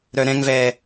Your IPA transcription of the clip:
ɾœɾɛ̃ŋvɛː

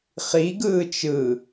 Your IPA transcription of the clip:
χiɡɯːt͡ʃ ɯ

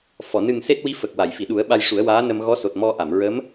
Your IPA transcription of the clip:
fɔ˨˩˨ nɨ˨˩ŋ se˦˥t̚wi˧˥fə˨˩k̚ wa˨˩˨jfi˨˩˨ɗu˨˩˦ə̯ ɓa˧jʂu˨˩˦ə̯ waː˧˥nə˧m ɣɔ˧˥so˨˩t̚ mɔ˧ ʔa˨˩˨mɹə˧˥m

